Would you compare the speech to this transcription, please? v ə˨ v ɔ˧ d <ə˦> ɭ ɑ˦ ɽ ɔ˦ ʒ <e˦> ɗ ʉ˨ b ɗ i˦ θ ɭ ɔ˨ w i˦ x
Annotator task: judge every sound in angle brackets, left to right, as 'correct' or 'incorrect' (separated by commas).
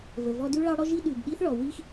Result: incorrect, incorrect